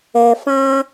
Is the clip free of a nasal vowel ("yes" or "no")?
no